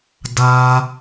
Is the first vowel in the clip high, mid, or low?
low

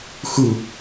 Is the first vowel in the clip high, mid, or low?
high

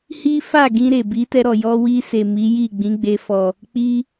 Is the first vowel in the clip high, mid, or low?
high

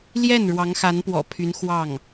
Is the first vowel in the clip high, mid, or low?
mid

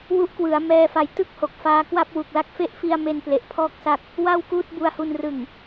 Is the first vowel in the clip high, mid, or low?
high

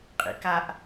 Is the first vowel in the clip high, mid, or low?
high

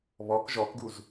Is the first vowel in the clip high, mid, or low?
mid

